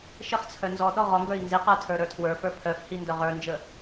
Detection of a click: absent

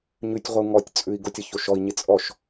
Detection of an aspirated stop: absent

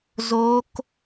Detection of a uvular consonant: absent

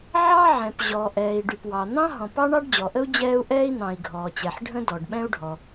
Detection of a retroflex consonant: present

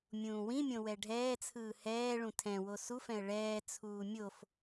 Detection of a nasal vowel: present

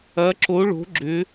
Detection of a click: present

